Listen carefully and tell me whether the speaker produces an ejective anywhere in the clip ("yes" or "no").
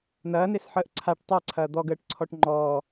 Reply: no